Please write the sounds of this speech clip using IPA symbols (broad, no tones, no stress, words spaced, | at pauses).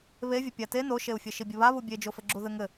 βevʲɘ pʲate noʃeu̯fʲɘ ʃibʲɘβaβu bʲed͡ʒofɘ ɡ͡ǁuðɘŋɘ